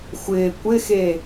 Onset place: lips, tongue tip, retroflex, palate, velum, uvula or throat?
velum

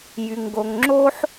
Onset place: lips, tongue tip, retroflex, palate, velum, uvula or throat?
palate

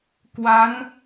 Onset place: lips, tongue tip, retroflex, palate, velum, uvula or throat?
velum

